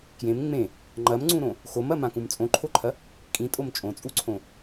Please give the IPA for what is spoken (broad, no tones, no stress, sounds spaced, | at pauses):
k j ẽ m ŋ͡m ẽ | ŋ͡ǃ ɐ m ŋ͡ǀ ũ ɾ õ | x o m ɐ m ã k ũ m t͡sʼ õ ǃʰ o ǃʰ ɐ | kʼ ĩ tʼ o m t͡ʃʼ õ t͡sʼ u ǀʰ õ